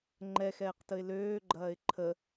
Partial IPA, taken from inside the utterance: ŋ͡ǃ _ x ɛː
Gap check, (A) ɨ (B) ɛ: B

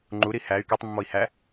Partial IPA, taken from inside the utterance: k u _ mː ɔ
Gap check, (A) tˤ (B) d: A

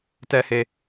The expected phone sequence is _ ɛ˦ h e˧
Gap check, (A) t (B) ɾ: A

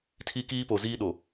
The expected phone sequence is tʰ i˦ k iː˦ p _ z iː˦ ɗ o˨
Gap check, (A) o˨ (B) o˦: A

